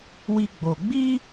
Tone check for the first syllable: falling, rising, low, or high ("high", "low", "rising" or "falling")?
high